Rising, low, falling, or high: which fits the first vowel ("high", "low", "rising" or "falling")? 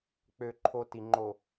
high